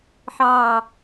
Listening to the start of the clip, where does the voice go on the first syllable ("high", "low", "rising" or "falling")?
low